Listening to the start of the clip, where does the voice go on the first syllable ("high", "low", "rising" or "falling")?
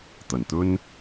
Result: low